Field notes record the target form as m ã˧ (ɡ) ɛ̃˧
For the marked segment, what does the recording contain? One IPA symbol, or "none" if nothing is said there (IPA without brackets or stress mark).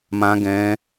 ɡ